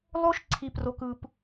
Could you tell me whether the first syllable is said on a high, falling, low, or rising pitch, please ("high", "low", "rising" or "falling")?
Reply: high